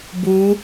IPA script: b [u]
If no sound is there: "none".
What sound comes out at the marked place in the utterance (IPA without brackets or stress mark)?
u